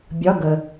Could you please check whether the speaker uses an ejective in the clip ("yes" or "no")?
no